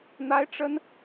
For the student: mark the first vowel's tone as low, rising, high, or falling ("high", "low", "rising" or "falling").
high